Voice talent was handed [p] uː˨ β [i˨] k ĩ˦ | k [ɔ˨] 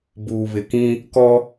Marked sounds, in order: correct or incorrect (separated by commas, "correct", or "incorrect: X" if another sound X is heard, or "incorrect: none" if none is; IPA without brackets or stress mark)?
incorrect: b, incorrect: ɪ˨, incorrect: ɔ˦